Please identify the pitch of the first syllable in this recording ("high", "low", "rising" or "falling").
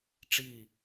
falling